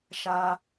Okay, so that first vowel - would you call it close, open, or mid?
open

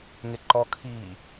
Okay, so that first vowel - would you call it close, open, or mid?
mid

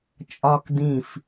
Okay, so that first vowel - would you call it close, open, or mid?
open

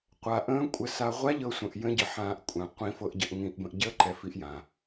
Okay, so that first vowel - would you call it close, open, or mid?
open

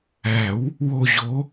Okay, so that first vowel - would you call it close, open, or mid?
open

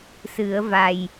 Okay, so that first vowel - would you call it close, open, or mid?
close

